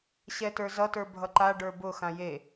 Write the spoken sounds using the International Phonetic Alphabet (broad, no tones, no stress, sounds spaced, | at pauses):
ɕ ɛ t ə˞ z ʌ t ə˞ bʱ ʌ ǃ a ɖ ə˞ b ʊ x ã j e